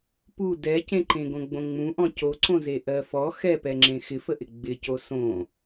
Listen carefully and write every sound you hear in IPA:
pu dɛcẽǃẽ ɡõɡ͡bõŋ͡mũʔɔ̃ coǀõze ʔɜfɔ xɛpɛŋ͡ǁẽ xɪfəʔɪ ɡ͡bɪco sõ

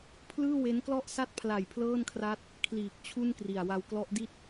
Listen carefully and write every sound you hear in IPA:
pʰlɯː˥˩we˦˥nklɔ˥˩ʔ sa˦˥t̚pʰla˨˩j pʰlɤː˥˩nkʰra˦˥t̚ | kʰliː˨˩k̚ t͡ɕʰu˥˩nkri˨˩a̯ wa˧wklɔ˦˥ʔdi˥˩t̚

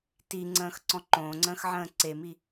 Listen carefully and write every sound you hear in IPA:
tiŋ͡ǀə̃ːx ǀɔ̃ǃõːŋ͡ǀə̃ːx ʕə̃ːǀemi

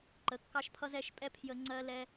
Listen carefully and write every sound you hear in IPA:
ǃə˩˧˩kːɑ˧ʃpʰʌ˧z ɛ˧ʃpʼɛ˧ pʰjə˧ ŋ͡ǀɜ˧lɛ˧

